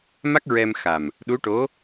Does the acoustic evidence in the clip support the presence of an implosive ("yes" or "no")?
yes